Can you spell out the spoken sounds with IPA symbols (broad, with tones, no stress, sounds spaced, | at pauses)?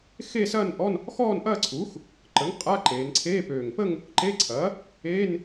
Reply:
x e˥˧ s ɐː˥˧ n ʔ ɔ˧˥˧ n | x ɔː˥˧ n ʔ ɐː˥˧ ǀʰ uː˩˥ x | ǃ ə˩˥ ŋ qʼ a˧˥˧ ǃ eː˩˧ n ǀʰ eː˧˥˧ p øː˨˩ ŋ p ə˥˧ ŋ | ǃ e˧˥˧ ǀʰ ɐː˩˥ | eː˧˥˧ n